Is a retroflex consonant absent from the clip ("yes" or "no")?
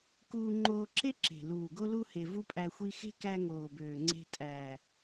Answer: yes